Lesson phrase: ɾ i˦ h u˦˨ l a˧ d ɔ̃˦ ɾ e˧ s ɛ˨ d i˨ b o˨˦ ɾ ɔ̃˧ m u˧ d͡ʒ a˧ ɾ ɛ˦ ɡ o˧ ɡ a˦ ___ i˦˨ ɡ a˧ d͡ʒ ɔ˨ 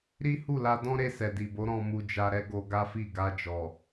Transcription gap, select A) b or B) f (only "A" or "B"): B